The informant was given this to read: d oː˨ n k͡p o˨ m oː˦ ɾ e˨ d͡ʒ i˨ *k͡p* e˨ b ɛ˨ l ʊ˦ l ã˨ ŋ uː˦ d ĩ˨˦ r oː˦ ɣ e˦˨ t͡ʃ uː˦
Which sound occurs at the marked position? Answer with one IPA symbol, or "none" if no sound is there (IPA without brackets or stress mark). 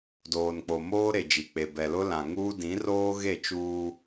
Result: k͡p